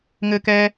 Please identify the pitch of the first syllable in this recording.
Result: low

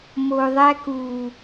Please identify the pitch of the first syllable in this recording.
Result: low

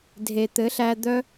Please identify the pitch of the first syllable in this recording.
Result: low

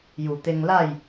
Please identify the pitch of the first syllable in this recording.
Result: low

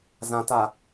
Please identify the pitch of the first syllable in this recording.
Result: low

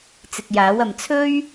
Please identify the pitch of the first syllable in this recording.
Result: low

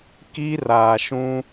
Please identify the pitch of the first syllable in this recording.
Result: high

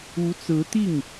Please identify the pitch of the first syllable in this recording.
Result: rising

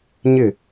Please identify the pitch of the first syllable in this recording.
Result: falling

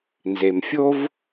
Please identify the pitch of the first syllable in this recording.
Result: low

